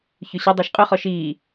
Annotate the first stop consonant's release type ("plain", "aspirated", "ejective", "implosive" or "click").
plain